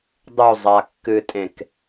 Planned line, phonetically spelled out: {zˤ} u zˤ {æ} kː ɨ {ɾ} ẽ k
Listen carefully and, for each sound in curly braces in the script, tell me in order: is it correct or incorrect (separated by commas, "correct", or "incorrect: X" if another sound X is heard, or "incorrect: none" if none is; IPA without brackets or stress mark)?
incorrect: dˤ, incorrect: a, incorrect: tʼ